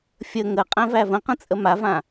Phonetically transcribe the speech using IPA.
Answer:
fʲ ə ŋ ə qʼ æ̃ v æ v ə̃ q ə̃ t͡sʼ ə m a v ã

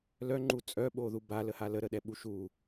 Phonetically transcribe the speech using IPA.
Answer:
l œ ŋ͡ǃ u t͡sʼ œ ɓ o ð u b a l ə h a l ə ɾ ə ɗ ɛ ɓ u ʃ u

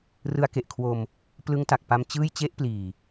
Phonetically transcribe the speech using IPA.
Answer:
r ɯ˦˥ a̯ k e˨˩ ʔ kʰ w o˧ m | p l ɯ˦˥ ŋ t a˨˩ k̚ p a˧ m t͡ɕ ɯː˥˩ j t͡ɕ e˦˥ ʔ p l iː˨˩

